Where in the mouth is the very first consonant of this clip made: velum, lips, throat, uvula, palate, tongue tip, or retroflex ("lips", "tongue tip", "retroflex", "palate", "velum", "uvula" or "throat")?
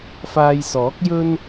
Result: lips